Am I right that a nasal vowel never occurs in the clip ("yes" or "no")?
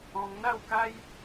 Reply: no